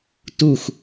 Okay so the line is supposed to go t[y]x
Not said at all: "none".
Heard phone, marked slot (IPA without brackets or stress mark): u